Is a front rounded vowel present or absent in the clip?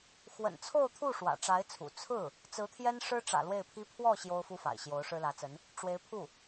absent